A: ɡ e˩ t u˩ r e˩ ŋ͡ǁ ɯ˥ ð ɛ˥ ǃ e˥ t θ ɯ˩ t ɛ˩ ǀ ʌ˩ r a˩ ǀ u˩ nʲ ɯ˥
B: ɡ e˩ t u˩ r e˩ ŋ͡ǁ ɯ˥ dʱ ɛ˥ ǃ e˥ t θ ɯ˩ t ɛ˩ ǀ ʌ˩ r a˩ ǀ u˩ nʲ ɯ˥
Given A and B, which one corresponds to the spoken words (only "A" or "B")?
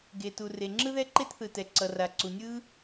A